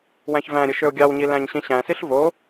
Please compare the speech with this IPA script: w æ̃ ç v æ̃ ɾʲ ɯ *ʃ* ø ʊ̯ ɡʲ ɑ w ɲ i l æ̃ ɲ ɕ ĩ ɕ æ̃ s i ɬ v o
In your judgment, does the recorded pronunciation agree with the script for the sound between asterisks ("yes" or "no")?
yes